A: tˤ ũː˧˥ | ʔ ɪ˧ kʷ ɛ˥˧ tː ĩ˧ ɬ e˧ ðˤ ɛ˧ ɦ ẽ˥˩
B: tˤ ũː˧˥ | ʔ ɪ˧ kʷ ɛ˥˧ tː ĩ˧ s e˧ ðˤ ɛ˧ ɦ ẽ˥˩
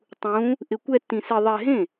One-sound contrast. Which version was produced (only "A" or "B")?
B